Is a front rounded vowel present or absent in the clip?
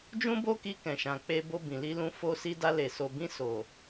absent